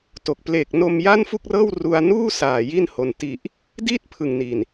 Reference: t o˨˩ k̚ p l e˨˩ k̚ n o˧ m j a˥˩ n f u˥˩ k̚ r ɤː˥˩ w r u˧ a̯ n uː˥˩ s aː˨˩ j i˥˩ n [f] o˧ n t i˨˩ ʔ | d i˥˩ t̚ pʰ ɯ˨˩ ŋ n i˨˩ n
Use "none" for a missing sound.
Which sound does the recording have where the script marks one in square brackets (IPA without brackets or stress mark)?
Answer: h